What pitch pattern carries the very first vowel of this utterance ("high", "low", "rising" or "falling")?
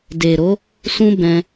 low